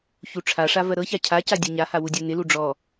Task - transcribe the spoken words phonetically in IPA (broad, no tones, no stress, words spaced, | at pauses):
çuʈ͡ʂʰaʂa vɜɾɤça cʰaca dʲɜɲaha wudʲɜnɪlu ɖ͡ʐɔ